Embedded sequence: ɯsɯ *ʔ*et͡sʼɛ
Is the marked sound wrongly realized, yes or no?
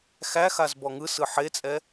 yes